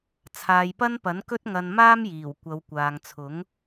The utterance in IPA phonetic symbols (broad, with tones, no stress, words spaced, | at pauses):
t͡sʰaː˨jpɐ˥npɐ˨˥nkɵ˥t̚ ŋɐ˧n maː˥mjiː˨˩w kʷɐ˨˧wkʷaː˨ŋt͡sʰʊ˨˥ŋ